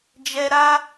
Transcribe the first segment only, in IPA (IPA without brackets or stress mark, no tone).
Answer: d͡ʒ